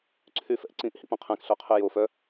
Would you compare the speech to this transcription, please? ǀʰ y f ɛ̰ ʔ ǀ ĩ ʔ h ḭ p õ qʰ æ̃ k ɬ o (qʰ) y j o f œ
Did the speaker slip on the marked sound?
no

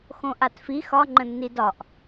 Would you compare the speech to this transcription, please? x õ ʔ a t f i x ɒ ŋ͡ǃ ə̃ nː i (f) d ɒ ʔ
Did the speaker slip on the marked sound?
yes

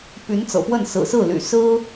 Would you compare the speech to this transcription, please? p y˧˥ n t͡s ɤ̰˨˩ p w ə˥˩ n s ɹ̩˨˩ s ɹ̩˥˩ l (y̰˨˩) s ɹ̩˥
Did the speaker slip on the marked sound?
no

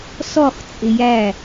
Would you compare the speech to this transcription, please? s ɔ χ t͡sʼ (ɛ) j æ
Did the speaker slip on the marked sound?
yes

